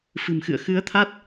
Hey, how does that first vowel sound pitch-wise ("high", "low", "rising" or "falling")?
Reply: low